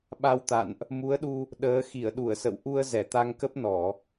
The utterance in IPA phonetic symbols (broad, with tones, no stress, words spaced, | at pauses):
ɓa˧wt̪a̰˧˨nʔ | mu˨˦ə̯ɗu˧ | ɗəː˨˦ xi˧˩ə̯ɗu˧˩ə̯sə̰˧˨w ʔu˧ə̯ zɛ˧˩t̪a˧ŋ kə˦˥p̚ nɔ˧˩˨